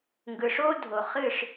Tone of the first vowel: low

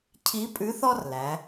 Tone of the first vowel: rising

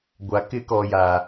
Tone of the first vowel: low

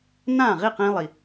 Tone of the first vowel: falling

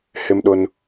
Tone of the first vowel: high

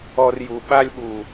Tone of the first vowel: high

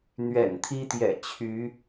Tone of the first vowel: low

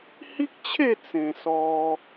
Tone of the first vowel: high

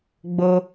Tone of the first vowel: low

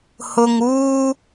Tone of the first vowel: low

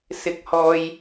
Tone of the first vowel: high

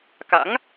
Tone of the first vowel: rising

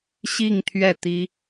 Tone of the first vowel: falling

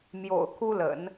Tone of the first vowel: low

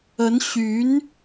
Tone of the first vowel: rising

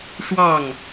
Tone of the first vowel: falling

